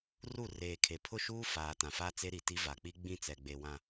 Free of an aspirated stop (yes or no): no